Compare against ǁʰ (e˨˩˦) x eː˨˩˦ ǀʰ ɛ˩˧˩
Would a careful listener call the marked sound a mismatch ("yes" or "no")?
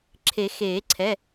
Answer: no